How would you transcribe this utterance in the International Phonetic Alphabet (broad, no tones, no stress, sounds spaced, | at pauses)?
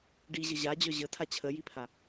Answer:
ɖ i ʑ ə ʑ a d͡ʑ œ ʑ ə tʰ a t͡ɕʰ ə j i pʰ a